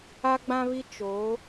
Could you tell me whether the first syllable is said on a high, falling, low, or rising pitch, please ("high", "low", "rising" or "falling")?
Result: high